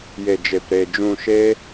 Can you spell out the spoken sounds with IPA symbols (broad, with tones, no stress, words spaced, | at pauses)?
je˨d͡ʒe˨pɾe˨ d͡ʒũ˨ ʃeː˧